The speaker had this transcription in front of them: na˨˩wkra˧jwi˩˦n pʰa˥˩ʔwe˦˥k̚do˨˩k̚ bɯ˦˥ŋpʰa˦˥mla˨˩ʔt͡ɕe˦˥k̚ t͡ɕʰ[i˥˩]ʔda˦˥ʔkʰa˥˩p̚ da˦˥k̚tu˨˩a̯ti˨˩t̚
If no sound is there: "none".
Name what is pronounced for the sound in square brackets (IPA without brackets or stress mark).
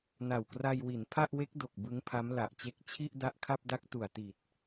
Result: i˥˩